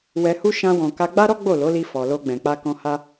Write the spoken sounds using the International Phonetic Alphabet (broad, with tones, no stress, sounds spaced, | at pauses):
w ɛ˧ h u˦ ʃ ã˦ w ɔ̃˧ k a˧ ɡ͡b a˦ ɾ ɔ˦ ɡ͡b o˦˨ l o˨˦ l i˧ f ɔ˨ l o˧ ɡ͡b ɛ̃˨ k͡p a˧ k ɔ̃˧ h a˦